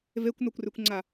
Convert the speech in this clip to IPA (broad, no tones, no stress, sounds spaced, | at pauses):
v e kʷ n o kʷ r ʉ kʷ ŋ͡ǀ a